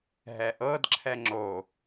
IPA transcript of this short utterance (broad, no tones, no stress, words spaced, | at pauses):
ɦɛʔɤd ǁʰɛŋ͡ǁo